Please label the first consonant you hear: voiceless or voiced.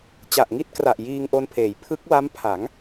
voiceless